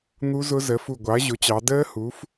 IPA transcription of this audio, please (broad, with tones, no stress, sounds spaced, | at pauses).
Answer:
n̪ u˦˥ z ʊ˦˥ z ə˩˥ f u˧˩ ɡʷ ɑ˩˥ ɐ̯ ʑ ʊ˩˥ t͡ɕ ɑ˩˧ d əː˦˥ h u˩˥ f